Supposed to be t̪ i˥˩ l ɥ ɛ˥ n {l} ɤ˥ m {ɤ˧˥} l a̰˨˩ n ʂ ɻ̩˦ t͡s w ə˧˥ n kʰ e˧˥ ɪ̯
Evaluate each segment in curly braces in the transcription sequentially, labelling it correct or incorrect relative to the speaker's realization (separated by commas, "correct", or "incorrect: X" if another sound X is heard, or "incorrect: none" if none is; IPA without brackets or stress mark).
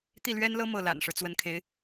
correct, incorrect: ɤ˥˩